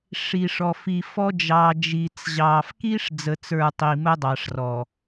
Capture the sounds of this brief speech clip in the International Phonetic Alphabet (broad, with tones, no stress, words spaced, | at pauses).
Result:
ʂi˨ ʂɔ˨fi˨fɔ˦ d͡ʒɑː˨ d͡ʒiː˨t͡sʑɑː˨f kiː˦ʂ d͡zə˨t͡sə˞˨ tˤi˨məː˦dˤɑ˨ʂrɔ˨